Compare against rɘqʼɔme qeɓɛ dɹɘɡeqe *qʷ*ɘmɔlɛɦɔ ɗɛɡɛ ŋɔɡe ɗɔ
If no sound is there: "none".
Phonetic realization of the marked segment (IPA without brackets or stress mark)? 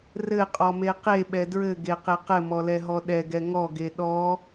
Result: q